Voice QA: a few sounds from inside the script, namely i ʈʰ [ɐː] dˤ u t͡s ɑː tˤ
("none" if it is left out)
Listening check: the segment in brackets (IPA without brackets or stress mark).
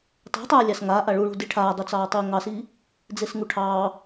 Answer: aː